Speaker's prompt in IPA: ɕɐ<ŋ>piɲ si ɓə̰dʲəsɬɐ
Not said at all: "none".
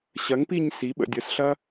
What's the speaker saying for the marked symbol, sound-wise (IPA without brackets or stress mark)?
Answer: ŋ